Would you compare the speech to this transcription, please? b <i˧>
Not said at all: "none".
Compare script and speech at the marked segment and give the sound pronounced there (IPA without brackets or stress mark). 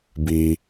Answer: i˧